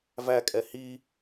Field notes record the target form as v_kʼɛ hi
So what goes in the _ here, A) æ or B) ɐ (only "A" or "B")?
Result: A